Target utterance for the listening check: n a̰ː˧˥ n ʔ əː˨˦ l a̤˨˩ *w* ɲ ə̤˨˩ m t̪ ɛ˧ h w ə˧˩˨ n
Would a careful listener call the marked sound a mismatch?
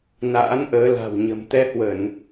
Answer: no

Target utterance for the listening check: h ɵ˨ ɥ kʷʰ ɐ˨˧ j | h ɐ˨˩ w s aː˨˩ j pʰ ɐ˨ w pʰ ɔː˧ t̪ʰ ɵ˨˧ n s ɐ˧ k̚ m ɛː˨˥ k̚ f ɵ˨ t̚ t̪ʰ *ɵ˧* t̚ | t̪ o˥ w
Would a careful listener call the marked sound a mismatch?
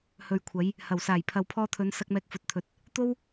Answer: yes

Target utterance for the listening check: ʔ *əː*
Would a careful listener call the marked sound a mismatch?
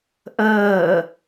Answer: no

